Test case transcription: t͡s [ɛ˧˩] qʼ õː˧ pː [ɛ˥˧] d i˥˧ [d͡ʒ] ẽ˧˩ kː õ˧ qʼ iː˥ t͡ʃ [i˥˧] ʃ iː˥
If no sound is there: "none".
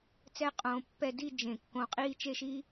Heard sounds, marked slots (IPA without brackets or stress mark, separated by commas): ɛ˥, ɛ˥˧, d͡ʒ, e˥˧